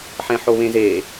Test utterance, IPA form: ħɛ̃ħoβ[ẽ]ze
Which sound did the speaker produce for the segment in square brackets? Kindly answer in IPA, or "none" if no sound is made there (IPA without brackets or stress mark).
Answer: ẽ